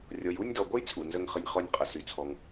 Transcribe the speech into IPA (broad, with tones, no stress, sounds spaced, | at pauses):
rʲ ɔ˨ j u˥˧ nʲ d ɔ˨ ɡʷ ə˥˧ j t͡sʼ u˨ n z ə˥˧ ŋ χ ə˥˧ nʲ χ ɔ˥˧ nʲ qʼ ə˨ s y˨ t͡sʰ ɔ˨ ŋ